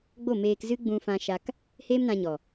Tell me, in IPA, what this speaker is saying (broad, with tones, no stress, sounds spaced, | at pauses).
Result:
ɡ͡b o˦˨ m eː˧ k z ɨ˦ ɡ͡b ũ˧ f ã˧ ʃ a˧ k | h eː˦ m n ã˧ ɲ ɔ˨